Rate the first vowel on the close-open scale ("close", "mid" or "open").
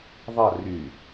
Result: open